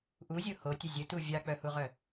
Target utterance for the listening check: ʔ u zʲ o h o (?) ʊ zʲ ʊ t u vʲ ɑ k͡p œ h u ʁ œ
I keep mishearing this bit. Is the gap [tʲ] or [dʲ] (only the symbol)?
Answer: tʲ